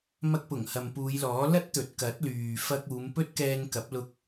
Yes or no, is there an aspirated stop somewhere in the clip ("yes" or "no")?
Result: no